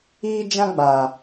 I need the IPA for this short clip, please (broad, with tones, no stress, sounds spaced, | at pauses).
iː˦ d͡ʒ ã˦ ɡ͡b aː˨